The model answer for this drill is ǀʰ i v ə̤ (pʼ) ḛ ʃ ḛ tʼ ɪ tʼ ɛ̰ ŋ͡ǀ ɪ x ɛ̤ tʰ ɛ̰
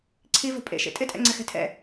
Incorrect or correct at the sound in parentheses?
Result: correct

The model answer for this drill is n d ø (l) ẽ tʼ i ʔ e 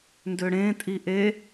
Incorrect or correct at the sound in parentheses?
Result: incorrect: ɽ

